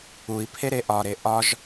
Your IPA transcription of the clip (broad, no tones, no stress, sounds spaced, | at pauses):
u i̯ pʰ e ɾ e ʔ ɒ ɾ e ʔ ɒ ʒ